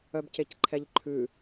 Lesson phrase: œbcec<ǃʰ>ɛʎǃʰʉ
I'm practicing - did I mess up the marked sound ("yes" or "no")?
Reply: no